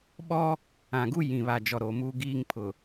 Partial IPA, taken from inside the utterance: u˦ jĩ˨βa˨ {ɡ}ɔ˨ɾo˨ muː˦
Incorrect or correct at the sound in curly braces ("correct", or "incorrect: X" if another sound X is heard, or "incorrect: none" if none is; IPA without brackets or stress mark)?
incorrect: d͡ʒ